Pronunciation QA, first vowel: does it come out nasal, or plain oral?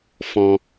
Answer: nasal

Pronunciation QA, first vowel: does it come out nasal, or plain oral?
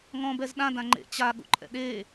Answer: nasal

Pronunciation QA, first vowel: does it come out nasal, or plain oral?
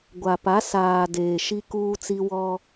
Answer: oral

